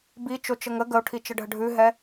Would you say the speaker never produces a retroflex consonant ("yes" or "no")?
no